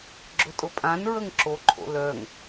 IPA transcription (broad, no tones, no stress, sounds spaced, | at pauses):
ɡ͡ǁ ʊ tʼ ʊ pʼ ã n ɹ ə ŋ ǁ o ǃʰ o̰ l œ ŋ